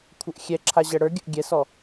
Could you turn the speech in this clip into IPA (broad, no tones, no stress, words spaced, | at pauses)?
kʷʰəʔxʲɛ ǁʰaʑɛɽə˞ɡʲəʔ ɡʲɛsɔ